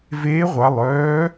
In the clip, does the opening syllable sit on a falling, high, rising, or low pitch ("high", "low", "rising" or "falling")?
rising